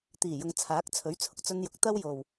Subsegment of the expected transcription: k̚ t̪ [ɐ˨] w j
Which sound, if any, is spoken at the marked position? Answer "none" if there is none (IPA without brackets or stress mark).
ɐ˥